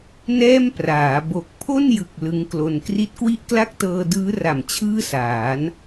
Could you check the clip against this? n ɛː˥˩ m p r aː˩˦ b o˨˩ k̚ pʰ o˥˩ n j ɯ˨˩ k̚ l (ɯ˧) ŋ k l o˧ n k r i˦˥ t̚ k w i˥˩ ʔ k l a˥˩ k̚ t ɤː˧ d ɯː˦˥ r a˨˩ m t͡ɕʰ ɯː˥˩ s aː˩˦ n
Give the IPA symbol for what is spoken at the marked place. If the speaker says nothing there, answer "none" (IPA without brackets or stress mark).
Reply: ɯ˦˥